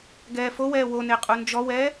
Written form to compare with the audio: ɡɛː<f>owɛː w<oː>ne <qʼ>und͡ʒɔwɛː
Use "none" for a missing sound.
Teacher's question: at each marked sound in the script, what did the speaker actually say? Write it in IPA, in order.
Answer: f, o, qʼ

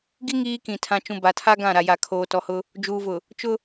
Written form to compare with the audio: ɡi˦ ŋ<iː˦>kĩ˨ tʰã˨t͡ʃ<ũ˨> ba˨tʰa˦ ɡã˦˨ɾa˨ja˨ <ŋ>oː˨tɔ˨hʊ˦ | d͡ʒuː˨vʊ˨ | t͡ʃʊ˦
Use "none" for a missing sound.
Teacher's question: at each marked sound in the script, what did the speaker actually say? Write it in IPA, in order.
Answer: iː˦, ũ˨, kʰ

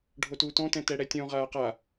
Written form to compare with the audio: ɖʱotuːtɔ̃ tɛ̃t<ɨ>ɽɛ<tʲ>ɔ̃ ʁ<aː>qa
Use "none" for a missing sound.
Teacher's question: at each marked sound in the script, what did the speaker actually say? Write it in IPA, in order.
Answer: ɛ, tʲ, aː

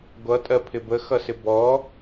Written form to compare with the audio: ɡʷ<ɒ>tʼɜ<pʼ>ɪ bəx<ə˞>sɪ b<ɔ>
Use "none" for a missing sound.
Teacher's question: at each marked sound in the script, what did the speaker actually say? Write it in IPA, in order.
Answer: ʌ, pʰ, ʌ, ɔ

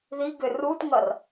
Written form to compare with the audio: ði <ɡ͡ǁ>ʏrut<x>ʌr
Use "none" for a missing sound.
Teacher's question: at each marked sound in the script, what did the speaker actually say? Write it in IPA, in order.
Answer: ɡ, ŋ

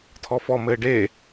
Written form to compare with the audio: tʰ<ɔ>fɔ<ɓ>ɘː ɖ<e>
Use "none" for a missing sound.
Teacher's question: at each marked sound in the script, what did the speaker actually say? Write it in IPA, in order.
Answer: ɔ, m, e

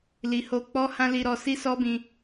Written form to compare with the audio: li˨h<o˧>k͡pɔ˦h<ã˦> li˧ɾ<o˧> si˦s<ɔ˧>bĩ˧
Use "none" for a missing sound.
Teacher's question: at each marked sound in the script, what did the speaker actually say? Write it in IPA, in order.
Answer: o˧, ã˦, ɔ˧, ɔ˦

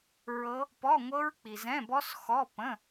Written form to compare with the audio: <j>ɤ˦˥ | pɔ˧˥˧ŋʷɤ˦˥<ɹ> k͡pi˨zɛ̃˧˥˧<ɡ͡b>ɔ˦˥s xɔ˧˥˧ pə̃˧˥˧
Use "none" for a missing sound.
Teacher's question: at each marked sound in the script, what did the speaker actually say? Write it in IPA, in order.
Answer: ɹ, ɹ, b

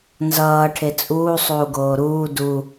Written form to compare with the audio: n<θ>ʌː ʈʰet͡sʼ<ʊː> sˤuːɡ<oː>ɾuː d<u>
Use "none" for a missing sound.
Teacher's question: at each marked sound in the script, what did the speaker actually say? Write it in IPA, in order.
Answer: z, uː, oː, u

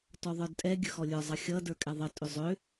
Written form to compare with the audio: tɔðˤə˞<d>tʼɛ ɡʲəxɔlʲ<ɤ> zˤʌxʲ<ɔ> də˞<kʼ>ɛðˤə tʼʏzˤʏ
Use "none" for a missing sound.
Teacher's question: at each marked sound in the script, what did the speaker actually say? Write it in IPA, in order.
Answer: d, ə˞, ʌ, kʼ

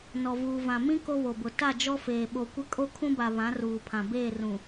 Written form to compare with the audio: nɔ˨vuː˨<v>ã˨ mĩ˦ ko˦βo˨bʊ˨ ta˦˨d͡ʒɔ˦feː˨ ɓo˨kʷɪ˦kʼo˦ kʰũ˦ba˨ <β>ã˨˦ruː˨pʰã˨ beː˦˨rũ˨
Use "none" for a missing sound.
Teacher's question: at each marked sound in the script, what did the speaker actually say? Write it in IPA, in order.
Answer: v, β

